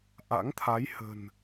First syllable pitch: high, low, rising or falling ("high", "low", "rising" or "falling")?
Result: rising